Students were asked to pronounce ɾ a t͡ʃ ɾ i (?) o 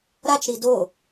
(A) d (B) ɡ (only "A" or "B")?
A